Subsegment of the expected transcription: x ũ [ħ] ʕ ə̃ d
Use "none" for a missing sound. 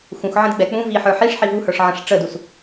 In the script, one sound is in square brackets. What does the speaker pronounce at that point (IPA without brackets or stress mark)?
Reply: x